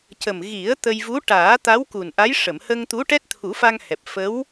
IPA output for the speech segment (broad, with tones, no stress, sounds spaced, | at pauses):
c ə˨˩ m ɣ i˨˩˦ ə̯ t̪ ə˧ j v u˧˥ ʈ aː˨˩˦ t̪ a˧˥ w k u˨˩ n ʔ a˧˥ j ʂ ə˨˩˨ m h ə˧ ŋ t̪ u˧˥ ʈ ɛ˦˥ t̚ t̪ʰ u˨˩˦ f a˧ ŋ h ɛ˨˩ p̚ f ə˧˥ w